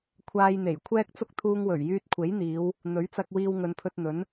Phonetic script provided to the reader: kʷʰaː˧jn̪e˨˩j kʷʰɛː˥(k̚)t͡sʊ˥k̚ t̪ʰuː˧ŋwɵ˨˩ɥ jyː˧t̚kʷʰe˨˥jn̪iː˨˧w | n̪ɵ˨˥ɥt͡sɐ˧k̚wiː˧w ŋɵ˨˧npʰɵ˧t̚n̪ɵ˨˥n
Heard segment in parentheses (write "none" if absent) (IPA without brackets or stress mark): k̚